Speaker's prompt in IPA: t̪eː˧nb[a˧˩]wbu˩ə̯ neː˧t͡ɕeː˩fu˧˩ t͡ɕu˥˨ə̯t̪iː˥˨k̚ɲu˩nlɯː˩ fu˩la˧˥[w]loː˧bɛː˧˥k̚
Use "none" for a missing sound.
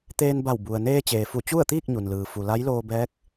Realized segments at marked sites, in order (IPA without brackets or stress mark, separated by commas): a˧˩, j